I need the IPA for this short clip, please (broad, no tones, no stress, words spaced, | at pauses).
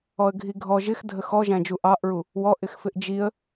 ɔə̯ɡʱiɡʱɔ ʒɪxdʱə xɔʒæ̃d͡ʒu ʔɑʔɹu | wɔʔɪx fɪʔd͡ʒiə̯